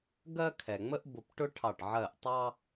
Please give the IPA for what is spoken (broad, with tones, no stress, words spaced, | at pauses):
ɡɜ˦kʰɛ˩ŋ͡mə˦ʔ bʊ˧˩pʈʊ˦ʈʰɑ˧˩ʈ ʕɜ˧˩ʔtˤɑ˦